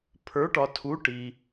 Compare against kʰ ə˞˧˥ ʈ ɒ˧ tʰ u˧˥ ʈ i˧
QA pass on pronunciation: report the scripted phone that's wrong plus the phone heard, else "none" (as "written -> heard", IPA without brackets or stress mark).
kʰ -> pʰ